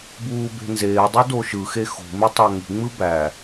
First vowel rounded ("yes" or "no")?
yes